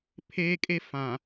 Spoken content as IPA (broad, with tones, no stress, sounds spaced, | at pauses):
pʰ eː˦ kʼ e˦ f ã˨